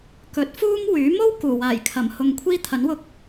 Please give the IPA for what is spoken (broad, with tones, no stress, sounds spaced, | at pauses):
k ɵ˨˥ t̚ f uː˥ m w yː˨˥ m o˥ w k uː˨˩ w aː˨˩ j kʰ ɐ˨˩ m h ʊ˨ ŋ kʷʰ iː˥ t̪ʰ ɐ˨˥ n w ʊ˧ k̚